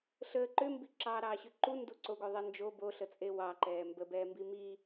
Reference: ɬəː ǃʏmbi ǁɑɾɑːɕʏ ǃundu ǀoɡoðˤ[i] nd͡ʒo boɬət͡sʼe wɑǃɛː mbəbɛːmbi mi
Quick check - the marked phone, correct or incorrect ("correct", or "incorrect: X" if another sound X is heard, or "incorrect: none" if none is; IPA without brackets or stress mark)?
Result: incorrect: e